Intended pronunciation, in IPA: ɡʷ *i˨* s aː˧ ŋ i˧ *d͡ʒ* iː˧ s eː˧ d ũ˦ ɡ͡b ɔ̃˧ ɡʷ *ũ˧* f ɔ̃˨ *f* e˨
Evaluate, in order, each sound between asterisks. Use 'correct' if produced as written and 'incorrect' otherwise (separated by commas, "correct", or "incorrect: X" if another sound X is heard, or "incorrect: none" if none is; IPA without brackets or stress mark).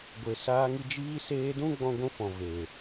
incorrect: e˨, correct, correct, incorrect: v